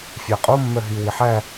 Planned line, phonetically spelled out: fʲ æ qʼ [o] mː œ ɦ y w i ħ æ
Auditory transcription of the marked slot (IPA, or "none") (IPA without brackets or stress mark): o